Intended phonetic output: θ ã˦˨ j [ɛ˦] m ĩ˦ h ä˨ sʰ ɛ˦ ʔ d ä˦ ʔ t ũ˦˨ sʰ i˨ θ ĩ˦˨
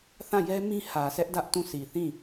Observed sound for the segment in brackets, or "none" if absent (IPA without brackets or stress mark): ɛ˦